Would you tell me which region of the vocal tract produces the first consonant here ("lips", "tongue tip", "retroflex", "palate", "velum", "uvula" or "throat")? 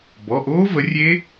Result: lips